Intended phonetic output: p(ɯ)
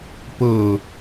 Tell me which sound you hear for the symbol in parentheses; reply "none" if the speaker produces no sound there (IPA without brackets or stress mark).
ɤ